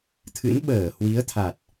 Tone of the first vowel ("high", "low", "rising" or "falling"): rising